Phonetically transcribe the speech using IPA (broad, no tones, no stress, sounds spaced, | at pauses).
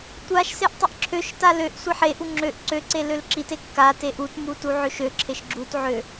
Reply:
tʷ a ʃ s e ʔ tˤ i ʔ ǁʰ ø ʃ t a l ø ʔ sʷ e ħ e ʔ u ŋ͡ǁ ø ʔ ǀ ø ǀ e l ø l ǁ i t e kː a t e ʔ u t m u t u ʕ ø ʃ ø ǁʰ e ʃ ɡ͡ǁ u t ʕ ø